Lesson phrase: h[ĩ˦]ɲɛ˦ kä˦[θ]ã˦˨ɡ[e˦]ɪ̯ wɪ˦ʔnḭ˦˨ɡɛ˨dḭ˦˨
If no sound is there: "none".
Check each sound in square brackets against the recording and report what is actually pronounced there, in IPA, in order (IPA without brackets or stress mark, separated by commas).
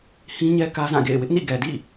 ĩ˦, z, ḛ˦˨